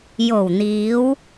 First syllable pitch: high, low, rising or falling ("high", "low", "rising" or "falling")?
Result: low